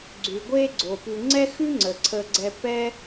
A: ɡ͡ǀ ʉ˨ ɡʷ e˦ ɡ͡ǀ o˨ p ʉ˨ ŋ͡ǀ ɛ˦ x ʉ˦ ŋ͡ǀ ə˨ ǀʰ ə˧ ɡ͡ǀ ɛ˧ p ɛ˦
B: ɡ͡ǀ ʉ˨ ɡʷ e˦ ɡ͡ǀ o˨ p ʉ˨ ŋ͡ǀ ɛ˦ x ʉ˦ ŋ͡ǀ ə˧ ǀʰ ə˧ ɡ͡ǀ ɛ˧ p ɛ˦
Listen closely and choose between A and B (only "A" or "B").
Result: A